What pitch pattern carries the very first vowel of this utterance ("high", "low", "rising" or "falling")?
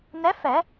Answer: rising